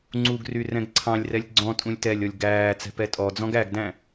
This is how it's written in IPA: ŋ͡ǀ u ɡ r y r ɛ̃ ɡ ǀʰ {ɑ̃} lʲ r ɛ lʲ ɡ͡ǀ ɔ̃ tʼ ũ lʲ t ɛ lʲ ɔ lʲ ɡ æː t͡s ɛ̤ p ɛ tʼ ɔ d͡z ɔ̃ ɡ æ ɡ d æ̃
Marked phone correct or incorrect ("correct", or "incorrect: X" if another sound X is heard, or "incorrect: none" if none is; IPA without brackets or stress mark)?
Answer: correct